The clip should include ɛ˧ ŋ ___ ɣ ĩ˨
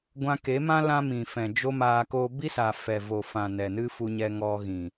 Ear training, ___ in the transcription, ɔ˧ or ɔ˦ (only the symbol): ɔ˧